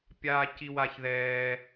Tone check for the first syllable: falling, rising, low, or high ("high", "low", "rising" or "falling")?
high